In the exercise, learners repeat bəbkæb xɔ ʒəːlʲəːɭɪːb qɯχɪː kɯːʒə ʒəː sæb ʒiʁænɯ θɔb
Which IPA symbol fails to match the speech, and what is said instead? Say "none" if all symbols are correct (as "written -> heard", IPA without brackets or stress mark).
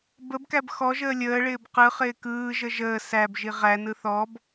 none